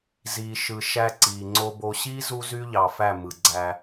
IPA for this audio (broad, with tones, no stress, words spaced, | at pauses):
ziː˨ʃɯ˨ ʃæ˦ǀiː˨ŋ͡ǀo˦bo˦ ɕiː˦ zu˦zy˦ ʎɑ˨fæ˦˨ mɯ˨ɡ͡ǀæ˦